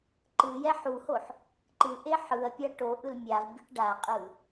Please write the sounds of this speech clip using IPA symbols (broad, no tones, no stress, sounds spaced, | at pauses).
ǃ ɯ j ɛ ħ u h o ħ | ǃ ɯ ʔ e ħ ɯ ɐ̯ pʲ a ʈ o ʔ ɯ l mʲ a v bʲ e ʈ ɖ a qʼ ɯ